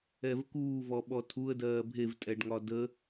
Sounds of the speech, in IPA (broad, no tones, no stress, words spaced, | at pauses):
ɛvkuː vɔɓɔtʰuə̯ dɜːbʱev tʼɛɖŋɒdə